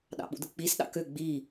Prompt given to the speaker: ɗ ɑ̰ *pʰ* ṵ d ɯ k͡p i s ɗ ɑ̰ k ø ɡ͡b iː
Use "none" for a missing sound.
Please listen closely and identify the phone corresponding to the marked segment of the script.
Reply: ɓ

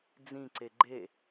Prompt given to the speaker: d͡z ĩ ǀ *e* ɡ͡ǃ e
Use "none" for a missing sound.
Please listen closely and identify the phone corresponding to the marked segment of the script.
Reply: e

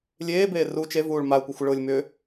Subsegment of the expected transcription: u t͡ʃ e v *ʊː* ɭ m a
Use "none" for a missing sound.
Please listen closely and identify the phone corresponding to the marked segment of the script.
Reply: uː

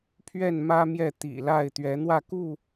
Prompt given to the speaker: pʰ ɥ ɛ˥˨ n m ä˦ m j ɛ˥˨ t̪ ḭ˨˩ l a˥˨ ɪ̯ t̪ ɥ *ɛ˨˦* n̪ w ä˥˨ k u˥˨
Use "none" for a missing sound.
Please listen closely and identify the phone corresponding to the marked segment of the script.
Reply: ɛ˨˦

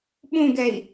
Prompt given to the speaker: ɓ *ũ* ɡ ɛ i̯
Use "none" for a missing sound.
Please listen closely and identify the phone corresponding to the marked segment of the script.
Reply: ũ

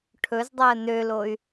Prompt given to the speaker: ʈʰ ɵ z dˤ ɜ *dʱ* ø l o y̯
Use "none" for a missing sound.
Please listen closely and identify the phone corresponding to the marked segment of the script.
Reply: n̪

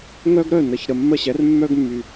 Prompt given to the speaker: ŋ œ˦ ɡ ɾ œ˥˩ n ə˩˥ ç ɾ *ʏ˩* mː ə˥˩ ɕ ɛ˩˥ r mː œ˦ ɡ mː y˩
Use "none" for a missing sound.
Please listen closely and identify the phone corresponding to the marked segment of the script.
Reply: ə˩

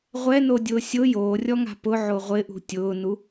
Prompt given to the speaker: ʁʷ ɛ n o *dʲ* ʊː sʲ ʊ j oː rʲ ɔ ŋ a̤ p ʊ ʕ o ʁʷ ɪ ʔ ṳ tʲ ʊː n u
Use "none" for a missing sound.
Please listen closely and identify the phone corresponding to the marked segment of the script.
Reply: dʲ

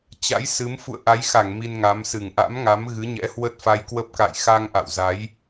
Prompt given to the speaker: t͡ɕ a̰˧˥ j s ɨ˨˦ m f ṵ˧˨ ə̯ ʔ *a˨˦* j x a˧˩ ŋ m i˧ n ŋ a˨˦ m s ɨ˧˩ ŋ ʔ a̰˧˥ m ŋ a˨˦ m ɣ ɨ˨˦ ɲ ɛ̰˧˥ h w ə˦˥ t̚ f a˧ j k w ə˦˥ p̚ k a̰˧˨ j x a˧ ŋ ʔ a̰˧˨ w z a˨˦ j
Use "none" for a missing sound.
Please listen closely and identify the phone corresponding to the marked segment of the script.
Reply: a˨˦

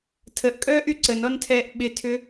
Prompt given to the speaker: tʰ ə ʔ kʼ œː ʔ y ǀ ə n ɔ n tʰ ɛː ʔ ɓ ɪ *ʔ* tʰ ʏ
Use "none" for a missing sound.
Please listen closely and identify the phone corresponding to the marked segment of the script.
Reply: none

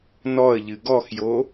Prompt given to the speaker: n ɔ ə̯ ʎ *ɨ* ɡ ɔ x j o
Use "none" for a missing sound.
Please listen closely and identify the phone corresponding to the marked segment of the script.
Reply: ɨ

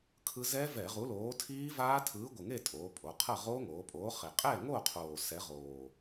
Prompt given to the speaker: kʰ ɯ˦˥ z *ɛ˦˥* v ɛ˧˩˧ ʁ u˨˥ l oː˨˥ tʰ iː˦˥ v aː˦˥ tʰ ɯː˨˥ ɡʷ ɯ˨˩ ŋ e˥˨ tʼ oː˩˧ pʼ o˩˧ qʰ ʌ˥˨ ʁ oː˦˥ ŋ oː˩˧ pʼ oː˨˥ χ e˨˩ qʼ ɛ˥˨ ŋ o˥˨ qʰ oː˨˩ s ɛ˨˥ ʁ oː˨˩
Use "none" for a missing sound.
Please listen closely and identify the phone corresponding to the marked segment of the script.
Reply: ɛ˦˥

